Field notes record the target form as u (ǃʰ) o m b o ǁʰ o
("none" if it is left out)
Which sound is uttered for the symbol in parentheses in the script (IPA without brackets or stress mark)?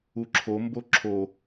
ǁʰ